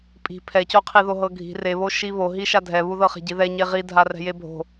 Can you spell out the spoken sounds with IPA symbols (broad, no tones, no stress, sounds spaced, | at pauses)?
pʼ i̤ pʰ ɛ c o qʰ i ð o ɦ ɤ ɡʱ i̤ r e β o ʃ i β o ɦ i ʃ a dʱ ɛ β u ð ɤ χ ɛ̤ ɟ i ð ɛ ɲ e ʁ i dʱ a r ɛ̤ j e bʱ o̤